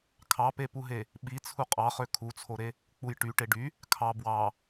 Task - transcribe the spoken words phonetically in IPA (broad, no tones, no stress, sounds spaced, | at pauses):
kʰ ɑ p e p u ɦ e | ɓ i t͡sʰ u qʼ ɑ χ ø kʰ u t͡sʰ o ɾ e | k͡p u j ʈ y ʈ e ɖ y | kʰ ɑ b w ɑ